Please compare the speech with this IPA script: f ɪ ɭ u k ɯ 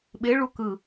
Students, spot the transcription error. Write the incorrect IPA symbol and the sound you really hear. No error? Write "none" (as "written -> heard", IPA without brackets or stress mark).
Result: f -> ɓ